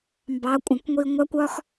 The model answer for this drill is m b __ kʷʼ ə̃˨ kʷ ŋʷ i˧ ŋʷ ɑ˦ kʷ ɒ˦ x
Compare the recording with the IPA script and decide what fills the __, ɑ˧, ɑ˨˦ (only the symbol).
ɑ˨˦